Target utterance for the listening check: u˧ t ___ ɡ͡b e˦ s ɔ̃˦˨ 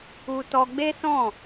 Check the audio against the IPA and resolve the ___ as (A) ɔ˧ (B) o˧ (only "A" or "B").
A